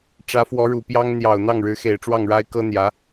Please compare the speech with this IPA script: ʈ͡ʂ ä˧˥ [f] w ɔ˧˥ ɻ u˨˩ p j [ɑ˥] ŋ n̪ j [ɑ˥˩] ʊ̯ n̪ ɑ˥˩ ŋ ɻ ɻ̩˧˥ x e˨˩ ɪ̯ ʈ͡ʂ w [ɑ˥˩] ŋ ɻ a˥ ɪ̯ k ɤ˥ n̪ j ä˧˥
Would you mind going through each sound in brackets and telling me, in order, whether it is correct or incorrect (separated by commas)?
correct, correct, incorrect, correct